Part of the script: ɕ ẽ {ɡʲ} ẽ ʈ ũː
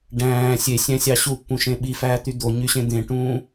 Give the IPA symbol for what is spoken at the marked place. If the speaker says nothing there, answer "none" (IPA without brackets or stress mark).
d̪